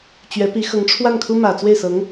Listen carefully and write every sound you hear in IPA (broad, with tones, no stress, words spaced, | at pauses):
t͡ɕɥɛ˧˥ pi˧˥xɤ˧˥ŋʈ͡ʂʰwa˥˩nkʰu˥ mä˨˩t͡swe˥˩ɪ̯sɤ˧˥ŋ